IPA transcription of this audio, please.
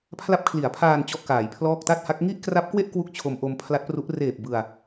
pʰ l a˦˥ p̚ kʰ l i˩˦ a̯ pʰ aː˧ n t͡ɕ ɔ˥˩ ʔ k aː˩˦ j pʰ l ɔː˥˩ k̚ t a˥˩ t̚ h a˦˥ k̚ ŋ i˥˩ ʔ k r a˦˥ p̚ k w e˥˩ ʔ k w u˥˩ k̚ t͡ɕʰ o˧ m ʔ o˧ m pʰ l a˦˥ t̚ p r u˦˥ ʔ r eː˨˩ p̚ b ɯ˧ a̯

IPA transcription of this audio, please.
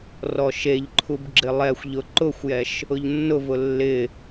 r ɔ ʃ e ʎ ǃʰ u b ɡ͡ǁ ɪ lˠ ɛ xʷ ʎ ʊ ǃ ʊ xʷ j ɛ ʃ | ʊ ʎ nː ʊ v ʊ lː ɪ

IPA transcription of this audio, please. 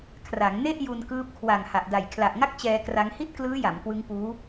kʰ r a˩˦ ŋ n e˥˩ ʔ j u˧ n k ɯː˦˥ p̚ kʰ w a˨˩ ŋ h a˨˩ ʔ d a˨˩ j kʰ l a˨˩ ʔ ŋ a˥˩ k̚ t͡ɕ ɛː˧ k r a˦˥ ŋ h i˥˩ t̚ k l ɯː˦˥ j a˩˦ m k w ɯ˦˥ ŋ p uː˦˥

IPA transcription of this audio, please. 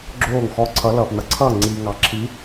ɡ͡ǁ oː˥˩ ŋ x ɔ˧˥˧ ǀʰ ʌ˨˥ l ʌː˩ p n ʌ˩ ǀʰ ʌː˥˩ ŋ͡ǀ iː˩ ŋ ɑ˩ ǁʰ i˨˥

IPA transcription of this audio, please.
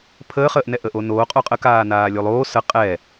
pʰ əː χ əː ʔ n ɛ ʔ ə ʔ o n oː qʼ o qʼ ə k aː n aː lʲ o lˠ oː s ə qʼ ɛ

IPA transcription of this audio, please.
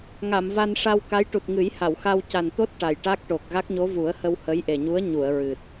ŋ a˨˩˨ m v a˧ n ʂ a˧ w k a˧˥ j ʈ u˨˩ t̚ ŋ ɨ˨˩˦ j h a˨˩˨ w x a˧ w c a˨˩ n t̪ o˦˥ t̚ ʈ a˨˩ j ʈ a˦˥ k̚ ʈ o˨˩ k̚ ɣ a˦˥ k̚ ɲ o˧˥ v u˨˩˦ ə̯ h ə˧ w h ə˧˥ j ʔ e˨˩ ɲ u˧˥ ə̯ ɲ u˨˩˨ ə̯ ɹ ɨ˨˩ t̚

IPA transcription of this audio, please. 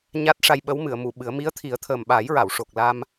ɲ a˦˥ t̚ ʂ a˧ j ɓ ə˧˥ w m ɨ˨˩˨ ə̯ m u˨˩˨ ɓ ɨ˨˩˦ ə̯ m i˧˥ ə̯ t̪ʰ i˨˩˦ ə̯ t̪ʰ əː˨˩ m ɓ a˨˩˦ j ɹ a˨˩˨ w ʂ o˨˩ k̚ l a˧ m

